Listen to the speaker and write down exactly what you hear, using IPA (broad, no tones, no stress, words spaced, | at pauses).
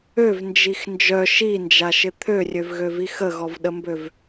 øvnd͡ʒix nd͡ʒœ ʃind͡ʒaʃɪ t̪ʰørʲøvɣøvix əɣɔvɗəmbøv